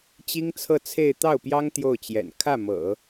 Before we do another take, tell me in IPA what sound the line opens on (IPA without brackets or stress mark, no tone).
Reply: t͡ɕ